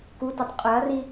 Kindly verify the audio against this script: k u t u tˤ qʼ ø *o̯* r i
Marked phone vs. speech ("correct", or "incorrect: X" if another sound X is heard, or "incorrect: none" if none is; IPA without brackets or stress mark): incorrect: ɐ̯